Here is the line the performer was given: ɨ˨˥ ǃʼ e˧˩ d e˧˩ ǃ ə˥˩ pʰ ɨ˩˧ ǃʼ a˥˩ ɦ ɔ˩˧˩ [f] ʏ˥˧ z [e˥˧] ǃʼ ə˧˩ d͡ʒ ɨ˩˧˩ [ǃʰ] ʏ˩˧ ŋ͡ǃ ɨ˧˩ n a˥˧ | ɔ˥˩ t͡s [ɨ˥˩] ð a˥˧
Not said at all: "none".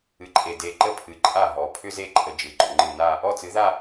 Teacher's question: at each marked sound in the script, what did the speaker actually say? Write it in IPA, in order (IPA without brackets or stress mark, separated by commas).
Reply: pʰ, e˥˩, ɡ͡ǃ, ɨ˨˥